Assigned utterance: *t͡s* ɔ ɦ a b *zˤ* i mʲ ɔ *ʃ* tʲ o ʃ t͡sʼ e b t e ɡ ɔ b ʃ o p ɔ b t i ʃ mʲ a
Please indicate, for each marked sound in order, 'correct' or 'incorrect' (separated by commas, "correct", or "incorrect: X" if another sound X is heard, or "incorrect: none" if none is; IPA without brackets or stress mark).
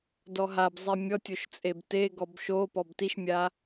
incorrect: d, correct, incorrect: none